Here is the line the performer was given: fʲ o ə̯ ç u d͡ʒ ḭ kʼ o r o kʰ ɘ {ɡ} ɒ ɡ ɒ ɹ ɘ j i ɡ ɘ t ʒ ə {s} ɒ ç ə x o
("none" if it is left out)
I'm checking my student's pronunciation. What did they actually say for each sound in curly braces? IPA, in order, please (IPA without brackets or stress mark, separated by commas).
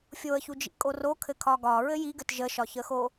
kʰ, ʃ